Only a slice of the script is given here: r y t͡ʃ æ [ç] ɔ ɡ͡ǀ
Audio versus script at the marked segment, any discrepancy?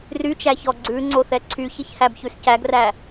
no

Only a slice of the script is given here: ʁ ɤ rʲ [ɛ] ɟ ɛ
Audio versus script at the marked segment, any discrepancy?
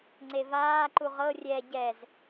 no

